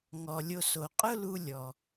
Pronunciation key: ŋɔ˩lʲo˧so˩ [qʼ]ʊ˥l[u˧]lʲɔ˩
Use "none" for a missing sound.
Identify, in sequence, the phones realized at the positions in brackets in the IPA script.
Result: qʼ, u˧

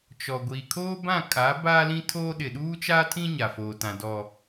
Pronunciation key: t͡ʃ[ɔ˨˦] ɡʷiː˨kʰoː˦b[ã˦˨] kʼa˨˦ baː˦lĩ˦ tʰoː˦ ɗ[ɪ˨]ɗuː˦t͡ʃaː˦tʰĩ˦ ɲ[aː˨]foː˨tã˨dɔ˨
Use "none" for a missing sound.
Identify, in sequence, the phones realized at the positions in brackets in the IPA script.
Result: ɔ˨, ã˦˨, ɪ˨, a˨

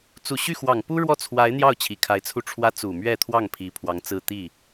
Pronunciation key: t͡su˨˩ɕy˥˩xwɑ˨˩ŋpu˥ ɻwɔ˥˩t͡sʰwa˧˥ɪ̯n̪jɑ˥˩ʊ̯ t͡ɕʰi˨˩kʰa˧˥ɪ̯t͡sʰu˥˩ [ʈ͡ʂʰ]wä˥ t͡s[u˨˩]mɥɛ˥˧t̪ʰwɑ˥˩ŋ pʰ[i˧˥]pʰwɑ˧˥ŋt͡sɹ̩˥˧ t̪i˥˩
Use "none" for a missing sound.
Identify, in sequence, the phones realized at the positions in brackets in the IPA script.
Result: ʈ͡ʂʰ, u˨˩, i˧˥

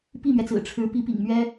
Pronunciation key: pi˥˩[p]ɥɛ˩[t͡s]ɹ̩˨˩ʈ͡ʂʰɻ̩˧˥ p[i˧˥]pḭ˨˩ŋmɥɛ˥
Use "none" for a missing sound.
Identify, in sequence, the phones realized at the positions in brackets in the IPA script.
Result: m, t͡s, i˧˥

